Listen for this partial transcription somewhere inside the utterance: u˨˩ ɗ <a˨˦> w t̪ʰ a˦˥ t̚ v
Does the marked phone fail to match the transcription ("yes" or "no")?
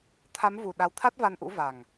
no